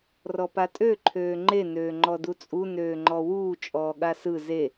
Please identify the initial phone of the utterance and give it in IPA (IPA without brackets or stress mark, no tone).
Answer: r